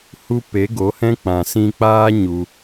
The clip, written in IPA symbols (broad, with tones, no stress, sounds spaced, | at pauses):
h u˦ p e˨˦ ɡ o˨˦ h ɛ̃˦ k͡p ã˨ s ĩ˧ k͡p aː˦ ɲ u˧